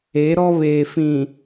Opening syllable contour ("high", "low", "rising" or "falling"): rising